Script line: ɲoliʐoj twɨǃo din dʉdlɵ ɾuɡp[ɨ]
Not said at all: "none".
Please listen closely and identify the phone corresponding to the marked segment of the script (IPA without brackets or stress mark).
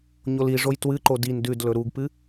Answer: ɨ